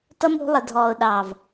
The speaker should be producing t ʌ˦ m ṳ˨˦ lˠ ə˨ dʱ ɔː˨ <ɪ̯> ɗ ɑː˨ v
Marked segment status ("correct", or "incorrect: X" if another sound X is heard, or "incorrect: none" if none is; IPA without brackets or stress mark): incorrect: ʊ̯